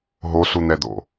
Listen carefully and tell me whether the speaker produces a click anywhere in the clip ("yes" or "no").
no